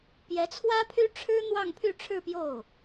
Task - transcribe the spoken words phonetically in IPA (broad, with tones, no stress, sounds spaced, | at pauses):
p j ɛ˧˥ t͡sʰ w ä˥ pʰ y˥ ʈ͡ʂʰ ɻ̩˥ n̪ w ɑ˥˧ ŋ pʰ y˥˧ ʈ͡ʂʰ ɻ̩˥˧ p j o˥˩ ʊ̯